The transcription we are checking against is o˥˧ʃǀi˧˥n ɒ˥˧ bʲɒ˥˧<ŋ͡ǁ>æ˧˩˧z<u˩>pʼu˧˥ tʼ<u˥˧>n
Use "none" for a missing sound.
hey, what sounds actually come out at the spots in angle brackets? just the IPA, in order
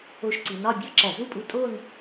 ǁ, u˥˧, o˥˧

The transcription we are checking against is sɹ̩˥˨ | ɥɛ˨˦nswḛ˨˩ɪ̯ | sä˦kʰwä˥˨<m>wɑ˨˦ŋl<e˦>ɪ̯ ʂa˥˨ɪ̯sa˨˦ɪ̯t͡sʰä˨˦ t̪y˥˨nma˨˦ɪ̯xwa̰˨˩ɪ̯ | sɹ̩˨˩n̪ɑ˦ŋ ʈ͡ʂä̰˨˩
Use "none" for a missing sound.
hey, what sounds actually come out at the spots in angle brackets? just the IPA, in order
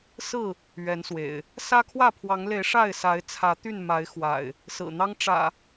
pʰ, e˨˦

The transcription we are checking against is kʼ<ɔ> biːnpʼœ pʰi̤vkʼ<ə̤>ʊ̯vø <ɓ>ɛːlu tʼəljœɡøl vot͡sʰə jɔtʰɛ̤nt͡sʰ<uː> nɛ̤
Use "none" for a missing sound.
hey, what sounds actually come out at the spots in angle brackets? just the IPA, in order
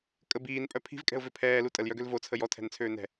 ə, ɛ̤, pʰ, øː

